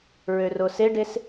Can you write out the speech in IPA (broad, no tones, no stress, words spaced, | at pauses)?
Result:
ɹøroseɖes